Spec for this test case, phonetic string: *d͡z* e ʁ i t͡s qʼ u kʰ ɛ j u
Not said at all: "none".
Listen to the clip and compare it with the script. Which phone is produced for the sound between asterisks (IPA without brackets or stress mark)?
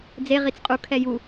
d͡z